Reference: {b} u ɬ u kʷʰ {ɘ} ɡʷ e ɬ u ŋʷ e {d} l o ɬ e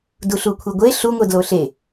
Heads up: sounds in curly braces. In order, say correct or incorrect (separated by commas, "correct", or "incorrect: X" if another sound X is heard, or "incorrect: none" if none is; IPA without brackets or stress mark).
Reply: incorrect: d, incorrect: e, correct